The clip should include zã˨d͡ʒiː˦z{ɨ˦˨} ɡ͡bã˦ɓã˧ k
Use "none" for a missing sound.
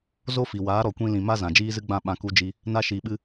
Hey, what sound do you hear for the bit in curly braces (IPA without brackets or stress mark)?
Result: ɨ˦